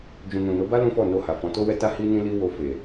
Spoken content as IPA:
d͡ʒ ũ˨ n ũ˨ n o˨˦ b a˦ l ũ˦ f ɔ˦˨ n o˧ h a˨ f ɔ̃˨˦ t o˦ w ɛ˦ t a˦ h i˦ n ĩ˦ l i˦ w o˧ f e˨

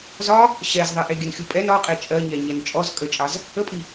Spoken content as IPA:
z ɒ | ɕ ɛ z ðˤ i ʔ e ɡʲ ə n xʲ u pʼ ɛ n ɒ qʼ e t͡ʃʼ ɜ ɲ ɛ ɲ ɛ n t͡ʃʼ ɔ z kʼ ə t͡ʃʼ ɑ z | ə pʼ i

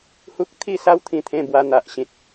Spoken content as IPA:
h u˦ k̚ t̪ʰ i˥˧ s a˦ w t̪ʰ ĩ˧ t̪ʰ ẽ˥˧ b w a˧ n̪ a˨ ʔ ɕ ĩ˨ t̚

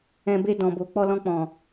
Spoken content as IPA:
ɛ̃˧ b e˧ d ɔ̃˨ b o˨ k͡p ɔ˧ l ɔ̃˧ k͡p ɔ̃˨

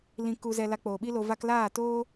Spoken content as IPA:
l ĩ˧ k u˧ z ɛ˧ l a˧ k͡p oː˨ ɓ i˦ l o˧ v a˦ k l aː˦˨ t oː˦

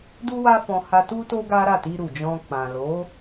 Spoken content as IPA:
d u˦ w a˦ f ɔ̃˧ h a˧ t u˦ t o˦ ɡ a˦ ɾ a˦˨ t i˧ ɾ u˨ d͡ʒ ɔ̃˧ k͡p ã˨ l o˨˦

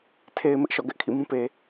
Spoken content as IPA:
tʰ e˨ ɪ̯ m ɪ˦ ʔ ʃ ɔ̰˦˨ ɡ ɛ˦ ʔ kʰ ḭ˦˨ m ũ˦ p e˨

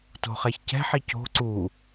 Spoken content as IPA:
t o̤ χ ɛ ç c ɛ̤ ħ i c o̤ ǀ u

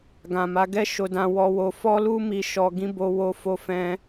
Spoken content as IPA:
ɡ ã˨ m a˨˦ ɡ ɛ˦ ʃ o˧ d ã˧ w ɔ˧ w o˧ f ɔ˦ l u˦ m i˧ ʃ ɔ˧ ɡ ĩ˦ b o˦ w o˦ f o˦ f ɛ̃˦

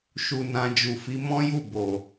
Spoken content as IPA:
ʃ u˧ n ã˧ d͡ʒ u˨ f i˨˦ m ɔ̃˦ j u˦˨ b o˨

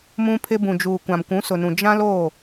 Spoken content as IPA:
m ũ˦ pʰ ɪ˦ b ũ˨ d͡ʒ uː˨ kʷ ã˨ m kʷ ũ˨˦ s ʊ˨ n ũ˨ d͡ʒ ã˦ l oː˦˨

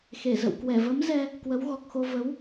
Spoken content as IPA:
x e˧˩ z ə̰˧˨ w k w ɛ˧˩ v ə˨˦ m z ɛ˧ | k w ə˨˦ w ɣ ɔ˨˩ k̚ x o˧ v ə˨˦ w

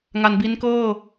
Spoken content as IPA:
ŋ a˧ n b i˦˥ n k ɤː˥˩

